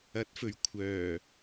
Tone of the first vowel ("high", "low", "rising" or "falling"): rising